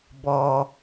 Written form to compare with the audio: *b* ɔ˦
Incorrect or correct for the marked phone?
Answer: correct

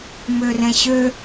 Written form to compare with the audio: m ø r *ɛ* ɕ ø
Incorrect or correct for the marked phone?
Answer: incorrect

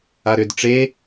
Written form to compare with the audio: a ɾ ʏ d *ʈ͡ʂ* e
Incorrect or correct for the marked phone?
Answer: correct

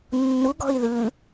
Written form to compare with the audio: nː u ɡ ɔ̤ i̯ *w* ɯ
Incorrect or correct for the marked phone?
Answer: incorrect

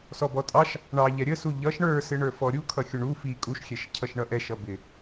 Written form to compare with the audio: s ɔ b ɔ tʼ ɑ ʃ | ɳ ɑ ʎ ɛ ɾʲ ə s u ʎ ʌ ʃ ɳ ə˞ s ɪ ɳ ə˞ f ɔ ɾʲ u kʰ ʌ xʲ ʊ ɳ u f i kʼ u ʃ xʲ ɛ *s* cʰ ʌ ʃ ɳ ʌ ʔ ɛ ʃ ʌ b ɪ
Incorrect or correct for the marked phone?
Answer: incorrect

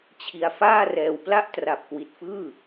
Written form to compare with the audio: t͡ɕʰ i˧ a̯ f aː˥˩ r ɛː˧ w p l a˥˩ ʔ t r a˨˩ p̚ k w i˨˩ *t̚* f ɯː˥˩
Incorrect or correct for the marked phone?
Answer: correct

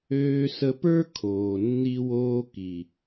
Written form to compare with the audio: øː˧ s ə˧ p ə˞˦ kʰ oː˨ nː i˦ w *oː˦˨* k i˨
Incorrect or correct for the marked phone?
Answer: incorrect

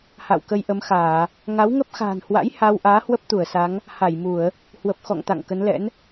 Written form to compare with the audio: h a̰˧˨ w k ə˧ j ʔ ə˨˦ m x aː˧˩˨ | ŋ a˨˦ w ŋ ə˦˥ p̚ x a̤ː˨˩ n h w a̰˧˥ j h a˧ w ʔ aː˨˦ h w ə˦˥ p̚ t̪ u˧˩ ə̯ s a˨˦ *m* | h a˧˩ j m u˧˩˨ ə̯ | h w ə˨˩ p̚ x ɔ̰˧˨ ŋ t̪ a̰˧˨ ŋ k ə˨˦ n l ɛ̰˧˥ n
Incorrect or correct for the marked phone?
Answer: incorrect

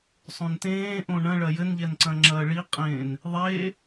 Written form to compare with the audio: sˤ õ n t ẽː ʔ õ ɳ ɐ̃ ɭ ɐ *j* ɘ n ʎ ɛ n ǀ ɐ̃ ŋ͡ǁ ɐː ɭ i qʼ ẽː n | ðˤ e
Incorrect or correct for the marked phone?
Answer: correct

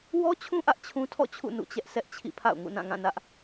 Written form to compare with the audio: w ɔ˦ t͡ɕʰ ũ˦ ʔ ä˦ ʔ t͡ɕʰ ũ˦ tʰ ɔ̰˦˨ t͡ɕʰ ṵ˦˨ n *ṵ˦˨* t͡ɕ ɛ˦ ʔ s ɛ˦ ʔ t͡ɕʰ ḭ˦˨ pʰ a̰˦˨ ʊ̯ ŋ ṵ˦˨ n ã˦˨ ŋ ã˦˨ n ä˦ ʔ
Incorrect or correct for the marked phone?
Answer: correct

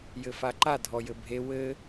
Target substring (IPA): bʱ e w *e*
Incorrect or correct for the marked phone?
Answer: incorrect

